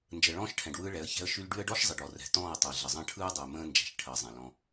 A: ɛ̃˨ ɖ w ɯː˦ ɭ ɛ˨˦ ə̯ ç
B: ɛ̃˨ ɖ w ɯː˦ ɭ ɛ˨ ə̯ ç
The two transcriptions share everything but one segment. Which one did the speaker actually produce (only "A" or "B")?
A